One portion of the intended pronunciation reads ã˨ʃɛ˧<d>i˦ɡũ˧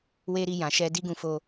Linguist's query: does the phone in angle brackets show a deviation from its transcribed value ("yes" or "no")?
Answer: no